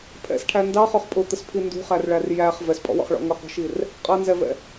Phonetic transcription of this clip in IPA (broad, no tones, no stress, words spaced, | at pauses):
pʰɛ̰sʈʰæ ndɑχɔχ pʼʊt̪əspʰi ndṳχærɭær jæχ vɛspʼɔ̰wɔ̰χɭɔ̰ ŋʊqṳʃir | qʼɑnzɛvɛ̰